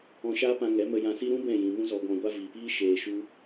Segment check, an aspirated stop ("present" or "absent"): absent